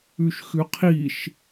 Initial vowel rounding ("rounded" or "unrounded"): rounded